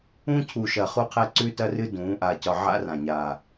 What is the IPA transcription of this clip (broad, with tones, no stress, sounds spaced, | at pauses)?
ũ˦ cʰ u˨˩ ʃ ɐ˨˩ χ u˦ qʰ ɛ˦ ǀ ʉ˦ t ɐ˦ r ɨ˦ d ũː˩˧ ʔ a˨˩ c ɒ˨˩ ʕ a̰˦ r ã˨˩ ɲ aː˨˩